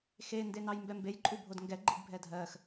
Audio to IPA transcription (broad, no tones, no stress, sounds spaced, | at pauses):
x e n d e n ɑ j m b ɛ m b e j ǃʼ u bʱ o d ŋ ɡ ɛ ɡ͡ǃ i ɡ bʱ ɛ dʱ ɜ x